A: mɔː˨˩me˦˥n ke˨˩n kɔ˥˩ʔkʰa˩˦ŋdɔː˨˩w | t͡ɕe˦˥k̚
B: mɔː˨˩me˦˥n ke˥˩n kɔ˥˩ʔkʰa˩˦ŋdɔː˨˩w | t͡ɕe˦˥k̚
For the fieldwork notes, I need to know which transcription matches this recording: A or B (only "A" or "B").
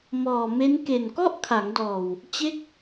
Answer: A